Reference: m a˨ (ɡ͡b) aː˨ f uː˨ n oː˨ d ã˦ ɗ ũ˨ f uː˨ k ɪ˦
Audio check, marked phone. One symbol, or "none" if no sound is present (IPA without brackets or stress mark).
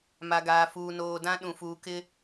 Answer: ɡ